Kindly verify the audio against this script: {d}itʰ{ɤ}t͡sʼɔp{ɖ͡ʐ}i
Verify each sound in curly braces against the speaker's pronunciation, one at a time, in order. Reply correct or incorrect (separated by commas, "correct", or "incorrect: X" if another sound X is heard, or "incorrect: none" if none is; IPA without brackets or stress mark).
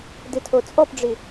correct, incorrect: o, correct